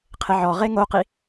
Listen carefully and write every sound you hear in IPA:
qʰ ɪ ʕ ɔ ʁ e ŋ o q i

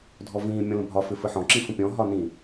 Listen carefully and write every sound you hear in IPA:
dʱ ɔ v ĩː mʲ ɔ̃ l ə̃ bʱ ɒ f ɪ f ɘ ħ ɔ̃ ǁ ĩ f ə̃ pʲ ɔ̃ ɦ ɒ n ĩ

